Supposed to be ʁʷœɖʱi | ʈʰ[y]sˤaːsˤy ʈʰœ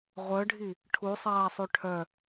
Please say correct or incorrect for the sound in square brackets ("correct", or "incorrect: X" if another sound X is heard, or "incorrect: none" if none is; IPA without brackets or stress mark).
incorrect: u